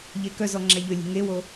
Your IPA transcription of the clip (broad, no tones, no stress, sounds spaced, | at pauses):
ʎ e k œ z ɔ ŋ͡ǁ æ ʎ ɵ lʲ e̤ ŋ e w o